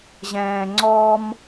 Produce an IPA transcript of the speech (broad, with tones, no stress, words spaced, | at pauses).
ʑɛ̃ː˨ŋ͡ǀɔː˦m